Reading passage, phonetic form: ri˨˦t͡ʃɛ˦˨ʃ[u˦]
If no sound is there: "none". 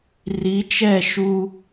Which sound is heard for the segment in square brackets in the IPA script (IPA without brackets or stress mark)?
u˦